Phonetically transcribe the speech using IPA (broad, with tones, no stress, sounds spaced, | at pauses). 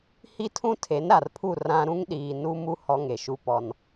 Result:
h i˦ tʰ ũ˦ tʰ e˨˦ n ɾ a˨ r pʰ u˦˨ r ã˦ ɾ ũ˦ ŋ ɗ iː˨ n u˦ m u˦ h ɔ˦ ŋ e˨ ʃ u˦ p ɔ˦ n